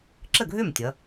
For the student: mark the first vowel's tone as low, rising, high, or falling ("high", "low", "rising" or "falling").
falling